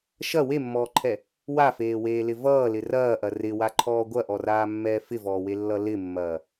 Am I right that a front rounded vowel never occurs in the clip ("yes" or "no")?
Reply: yes